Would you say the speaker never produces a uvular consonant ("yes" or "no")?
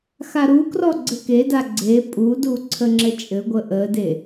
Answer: yes